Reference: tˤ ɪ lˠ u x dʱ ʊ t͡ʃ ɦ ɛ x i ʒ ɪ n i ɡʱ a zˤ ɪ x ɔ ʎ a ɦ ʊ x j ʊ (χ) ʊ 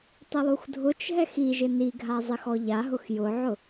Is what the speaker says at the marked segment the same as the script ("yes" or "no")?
no